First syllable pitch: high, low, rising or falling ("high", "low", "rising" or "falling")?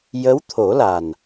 rising